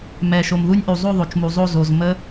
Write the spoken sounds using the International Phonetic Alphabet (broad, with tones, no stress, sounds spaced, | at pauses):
m ɛ˩ ʃ o˩ m ð u˦˥ nʲ ʔ u˩ zˤ o˦˨ ðˤ o˩ t͡ʃ m u˩ zˤ o˦˨ z o˩ z m ə˦˥